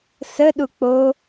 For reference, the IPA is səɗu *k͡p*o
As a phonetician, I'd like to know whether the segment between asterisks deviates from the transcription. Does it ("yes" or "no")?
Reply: no